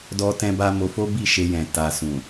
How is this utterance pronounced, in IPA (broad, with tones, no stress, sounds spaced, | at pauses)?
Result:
d ɔ˦ t ɛ̃˦ b a˦ m o˧ f o˦ b i˦˨ ʃ e˧ j ɛ̃˨ t a˨ s ũ˨